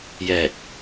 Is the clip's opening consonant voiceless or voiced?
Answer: voiced